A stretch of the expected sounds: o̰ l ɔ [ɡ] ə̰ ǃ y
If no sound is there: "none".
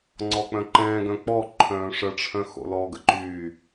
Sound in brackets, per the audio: ɡ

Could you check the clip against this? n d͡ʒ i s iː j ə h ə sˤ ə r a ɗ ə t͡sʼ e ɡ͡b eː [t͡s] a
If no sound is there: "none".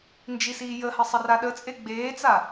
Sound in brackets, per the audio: t͡s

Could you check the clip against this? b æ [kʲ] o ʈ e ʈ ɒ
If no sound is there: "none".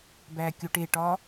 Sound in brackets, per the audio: kʲ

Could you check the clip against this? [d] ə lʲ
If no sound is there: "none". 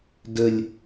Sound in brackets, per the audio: d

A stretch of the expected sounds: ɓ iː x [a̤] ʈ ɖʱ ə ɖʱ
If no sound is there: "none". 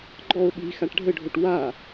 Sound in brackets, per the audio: a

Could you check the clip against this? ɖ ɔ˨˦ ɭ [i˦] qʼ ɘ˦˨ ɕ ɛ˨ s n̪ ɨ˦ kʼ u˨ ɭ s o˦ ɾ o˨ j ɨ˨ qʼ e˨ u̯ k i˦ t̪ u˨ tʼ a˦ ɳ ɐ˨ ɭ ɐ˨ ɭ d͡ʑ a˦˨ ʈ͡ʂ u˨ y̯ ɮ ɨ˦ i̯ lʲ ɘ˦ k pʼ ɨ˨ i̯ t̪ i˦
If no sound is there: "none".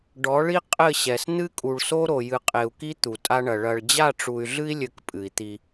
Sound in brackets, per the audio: i˦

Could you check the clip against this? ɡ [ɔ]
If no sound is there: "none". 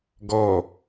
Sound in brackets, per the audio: ɔ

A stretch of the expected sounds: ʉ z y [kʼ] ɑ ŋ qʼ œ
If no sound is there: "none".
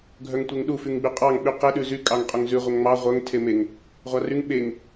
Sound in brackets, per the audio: kʼ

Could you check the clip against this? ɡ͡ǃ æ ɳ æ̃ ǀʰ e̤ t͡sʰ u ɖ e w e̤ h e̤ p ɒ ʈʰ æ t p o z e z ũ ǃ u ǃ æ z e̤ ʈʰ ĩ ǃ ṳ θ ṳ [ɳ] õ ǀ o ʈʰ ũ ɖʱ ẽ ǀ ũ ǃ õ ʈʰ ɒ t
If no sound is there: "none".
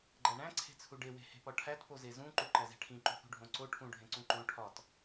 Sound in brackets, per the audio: ɖʱ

